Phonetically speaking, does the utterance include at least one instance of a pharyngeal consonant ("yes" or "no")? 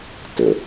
no